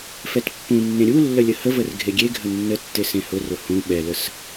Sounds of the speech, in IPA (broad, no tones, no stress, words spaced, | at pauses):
fɛtpːũnːẽ ɾʲulːə lʲəhəvər ɡʱeɡʲeɡʱə nːətːe sẽhʊrʊ hũ ɓɛləs